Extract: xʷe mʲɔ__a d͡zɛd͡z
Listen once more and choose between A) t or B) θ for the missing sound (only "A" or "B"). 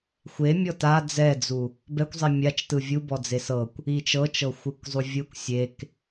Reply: A